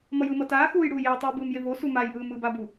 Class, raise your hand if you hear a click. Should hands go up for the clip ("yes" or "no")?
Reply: no